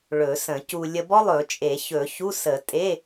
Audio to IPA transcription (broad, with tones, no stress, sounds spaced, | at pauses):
ɭ ɵ˨˩˦ s ə̃˨˩˦ c u˧ lʲ ə˧ b ɔ˥ lˠ ɵ˨˩˦ t͡ʃʼ e˨˩˦ ç ɵ˨˩˦ ç u˧˥˧ s ə˨˩˦ tʼ e˧˥˧